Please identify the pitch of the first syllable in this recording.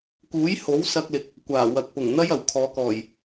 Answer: rising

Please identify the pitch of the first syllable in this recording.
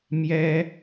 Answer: high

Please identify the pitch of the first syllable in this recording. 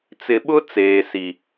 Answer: low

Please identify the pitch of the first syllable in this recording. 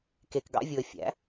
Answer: low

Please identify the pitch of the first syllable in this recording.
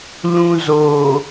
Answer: low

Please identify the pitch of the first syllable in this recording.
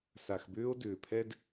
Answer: low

